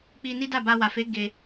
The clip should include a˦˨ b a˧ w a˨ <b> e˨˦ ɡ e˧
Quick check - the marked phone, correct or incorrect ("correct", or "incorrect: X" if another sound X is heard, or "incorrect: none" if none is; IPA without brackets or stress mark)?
incorrect: f